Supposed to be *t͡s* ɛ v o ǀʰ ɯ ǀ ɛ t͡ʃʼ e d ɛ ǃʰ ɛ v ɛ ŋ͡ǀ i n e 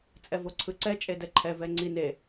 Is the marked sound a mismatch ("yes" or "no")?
yes